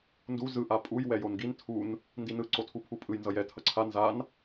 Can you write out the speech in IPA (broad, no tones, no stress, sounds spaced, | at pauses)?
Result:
n d u z ɯ ʔ a pʼ u j w ɛ j o n ɡ i n tʰ u n | n d i n ɯ ǀ o tʰ u pʰ u pʼ ɯ j n z ʌ j ɛ tʰ ʌ ǀʰ a n z a n